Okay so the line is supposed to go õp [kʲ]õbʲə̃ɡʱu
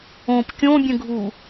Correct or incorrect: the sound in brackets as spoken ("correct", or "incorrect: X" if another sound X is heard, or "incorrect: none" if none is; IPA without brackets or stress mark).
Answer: correct